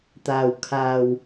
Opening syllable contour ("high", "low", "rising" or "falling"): low